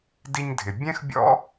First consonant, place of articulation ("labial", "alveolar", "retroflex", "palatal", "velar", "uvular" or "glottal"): alveolar